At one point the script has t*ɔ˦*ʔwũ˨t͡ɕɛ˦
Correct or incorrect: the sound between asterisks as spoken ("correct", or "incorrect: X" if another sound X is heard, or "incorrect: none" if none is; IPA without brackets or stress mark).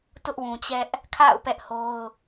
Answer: incorrect: ʊ˦